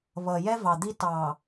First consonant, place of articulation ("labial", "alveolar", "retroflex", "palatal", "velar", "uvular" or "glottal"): labial